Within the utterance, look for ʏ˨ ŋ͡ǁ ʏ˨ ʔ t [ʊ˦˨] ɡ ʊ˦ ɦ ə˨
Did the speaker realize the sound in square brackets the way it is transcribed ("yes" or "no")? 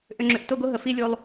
yes